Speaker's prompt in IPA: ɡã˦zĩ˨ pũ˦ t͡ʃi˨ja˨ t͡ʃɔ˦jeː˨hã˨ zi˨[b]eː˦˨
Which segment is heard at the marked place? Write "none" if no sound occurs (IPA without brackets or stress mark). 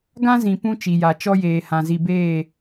b